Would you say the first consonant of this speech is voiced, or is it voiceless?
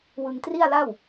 voiced